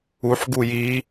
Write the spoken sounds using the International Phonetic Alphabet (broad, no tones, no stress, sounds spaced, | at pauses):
u ħ ɡ u j i